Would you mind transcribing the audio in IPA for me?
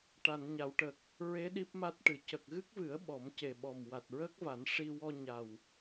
ʈ a˨˩˨ n ɲ a˨˩˨ w ʈ ə˨˩ k̚ | ɹ e˧˥ ɗ i˦˥ p̚ m a˦˥ t̚ ʈ ɨ˨˩˨ c ə˨˩ k̚ ɣ ɨ˦˥ k̚ v ɨ˨˩˦ ə̯ ɓ ɔ˨˩˦ m c e˨˩ ɓ ɔ˨˩ m w a˨˩ t̚ ɹ əː˦˥ k̚ v a˨˩˦ n ʂ i˧ w ɔ˧ ɲ a˨˩ w

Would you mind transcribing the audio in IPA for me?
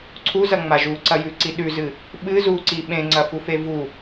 ǀʰ u z ɐ ŋ͡m a ʒ u ǀ ɐ j ʉ ǀ i ɗ ʉ z ɨ | ɓ ɨ z u ǀ i ɓ ẽ ŋ͡ǀ ɐ f u f e v u

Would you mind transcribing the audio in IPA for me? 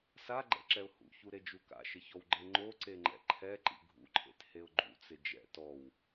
s a ɡ͡ǃ ɛ̰ ǁ ɛ ʊ̯ h ṵ ç u ɾ e d͡ʒ u k a̰ ʃ ɪ ç ɔ w ɡ͡ǃ e ŋ͡ǃ o ǀ e ŋ͡ǃ ɛ̰ ǃʰ ɛ ǃ ḭ ɡʱ ṵ ǃʰ ḛ t h e ʊ̯ ɡ͡ǃ ṵ t͡s ɪ d͡ʒ ɛ̰ t ɔ w

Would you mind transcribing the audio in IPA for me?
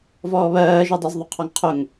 v ɔː β ɜː ʒ i dˤ ɑ z ðˤ ʊ qʰ ɒ ŋ qʰ ʊ ŋ

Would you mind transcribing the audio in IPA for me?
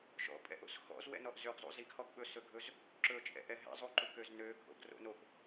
ʃ ɔ̰ pʼ ɛ̰ ʔ o̰ s x ɔ̰ z w ɛ̰ n ɔ ʔ z ø ɡ zˤ ṵ z i ɡ h ɔ ɡ ɓ ɵ s ɵ ɡʱ ɵ z | ǁ ɵ t͡ʃʼ ɛ̰ ʔ ɛ ɦ ɛ̰ zˤ u ǃ u k ø z n ø ɡʱ o̰ ɡ r o̰ n o k

